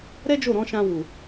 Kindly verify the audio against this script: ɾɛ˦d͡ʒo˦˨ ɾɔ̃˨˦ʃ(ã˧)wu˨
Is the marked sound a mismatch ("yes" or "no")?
no